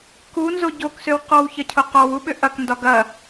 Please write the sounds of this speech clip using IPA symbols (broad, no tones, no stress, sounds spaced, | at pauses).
k u n z o ɟ o k s ø w q ɔ w ç ɐ cʰ o q ɔ w u ɓ ʏ ʔ ɐ k n d ɒ ɡ ɐ